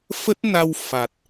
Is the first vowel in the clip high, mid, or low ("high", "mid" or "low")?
mid